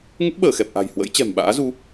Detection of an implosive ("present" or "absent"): present